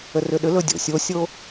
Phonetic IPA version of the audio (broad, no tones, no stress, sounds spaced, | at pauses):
ə r ʏ ɗ ʏ l ɵ dʲ o̰ sʲ o sʲ o